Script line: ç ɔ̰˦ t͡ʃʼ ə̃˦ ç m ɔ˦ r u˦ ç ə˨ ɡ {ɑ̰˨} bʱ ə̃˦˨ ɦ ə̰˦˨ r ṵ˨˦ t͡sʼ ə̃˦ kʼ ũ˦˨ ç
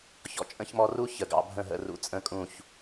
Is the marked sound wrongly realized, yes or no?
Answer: no